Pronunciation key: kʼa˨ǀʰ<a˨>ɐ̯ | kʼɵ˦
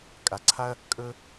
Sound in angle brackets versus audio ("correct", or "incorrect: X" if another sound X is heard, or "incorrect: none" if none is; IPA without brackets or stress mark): incorrect: a˦